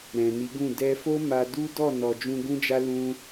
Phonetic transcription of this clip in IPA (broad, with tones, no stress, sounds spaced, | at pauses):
ɾ ɛ̃˨ n i˨˦ ɡ ũ˦˨ d ɛ˧ f o˦ m a˧ d u˦ d ɔ˦˨ n ɔ˨ d͡ʒ ũ˧ ɡ ũ˦ d͡ʒ a˦ l ũ˦